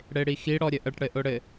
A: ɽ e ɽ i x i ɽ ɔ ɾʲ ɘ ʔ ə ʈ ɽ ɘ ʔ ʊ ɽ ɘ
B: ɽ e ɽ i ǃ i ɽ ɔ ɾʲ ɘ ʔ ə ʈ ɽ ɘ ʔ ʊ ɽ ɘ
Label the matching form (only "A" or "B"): A